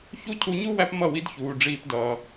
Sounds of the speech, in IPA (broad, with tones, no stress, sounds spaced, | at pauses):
ç u˦ cʰ u˧ ɲ u˦ w æ˦ p m ʌ˦˨ w i˦ d ç uː˧ ɖ͡ʐ iː˦ p d ʌː˧